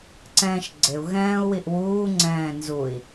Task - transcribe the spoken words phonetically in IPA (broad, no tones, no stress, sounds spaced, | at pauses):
ǀ ɛ̃ː ʃ ɡ͡ǀ ɪ u̯ ɣ ɛ̃ː u̯ w i ʔ w uː ŋ͡ǀ ɛ̃ː n z u i̯